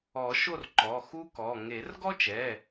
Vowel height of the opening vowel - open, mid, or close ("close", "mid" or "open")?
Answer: mid